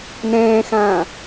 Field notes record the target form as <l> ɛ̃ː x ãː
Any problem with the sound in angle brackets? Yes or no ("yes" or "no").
yes